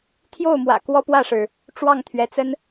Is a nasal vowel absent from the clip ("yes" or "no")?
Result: yes